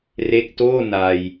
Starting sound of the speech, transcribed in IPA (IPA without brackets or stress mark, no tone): r